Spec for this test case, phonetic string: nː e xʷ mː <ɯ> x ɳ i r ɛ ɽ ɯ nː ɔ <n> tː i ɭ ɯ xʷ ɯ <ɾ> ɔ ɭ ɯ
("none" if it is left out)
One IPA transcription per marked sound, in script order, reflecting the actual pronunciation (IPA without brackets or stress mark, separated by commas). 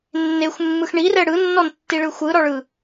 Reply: ɯ, n, ɾ